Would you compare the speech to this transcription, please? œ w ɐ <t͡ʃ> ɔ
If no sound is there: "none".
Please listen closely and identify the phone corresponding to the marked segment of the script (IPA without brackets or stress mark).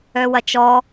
t͡ʃ